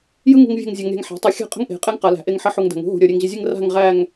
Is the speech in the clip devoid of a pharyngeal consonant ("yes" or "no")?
no